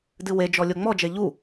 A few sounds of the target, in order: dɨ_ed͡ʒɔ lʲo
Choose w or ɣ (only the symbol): w